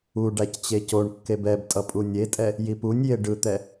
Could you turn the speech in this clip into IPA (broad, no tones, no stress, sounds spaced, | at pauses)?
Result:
u ɖ a c t͡ɕ e c o ɳ kː e b ɛ b tʼ ʌ pʼ u nʲ e tʼ ɛ | j i p u nʲ j e ɖ ɯ t̪ ɛ